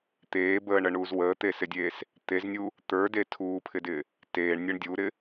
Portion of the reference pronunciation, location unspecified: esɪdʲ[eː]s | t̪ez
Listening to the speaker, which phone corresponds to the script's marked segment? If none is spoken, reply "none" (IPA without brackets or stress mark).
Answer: eː